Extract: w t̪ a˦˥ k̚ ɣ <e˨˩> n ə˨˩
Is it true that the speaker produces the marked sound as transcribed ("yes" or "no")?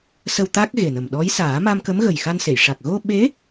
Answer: yes